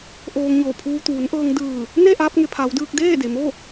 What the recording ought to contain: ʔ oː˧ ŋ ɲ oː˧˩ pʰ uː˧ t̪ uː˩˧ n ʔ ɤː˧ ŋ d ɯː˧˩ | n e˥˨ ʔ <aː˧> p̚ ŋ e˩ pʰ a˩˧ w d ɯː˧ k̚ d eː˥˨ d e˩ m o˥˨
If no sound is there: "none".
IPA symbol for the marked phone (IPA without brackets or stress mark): aː˧